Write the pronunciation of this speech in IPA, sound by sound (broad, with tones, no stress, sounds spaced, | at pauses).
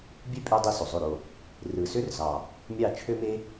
bʲ ø˦ pʼ y˧ dˤ i˧ s o˨ zˤ ø˦˨ ɾ o˦˨ | r ɯ˨ s ø˦ r z ɑ˨ | mʲ ɑ˦˨ t͡ʃʰ ø˦ m e˦